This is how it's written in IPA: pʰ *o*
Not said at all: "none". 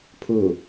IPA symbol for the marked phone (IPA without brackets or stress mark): u